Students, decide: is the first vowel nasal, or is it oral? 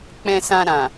nasal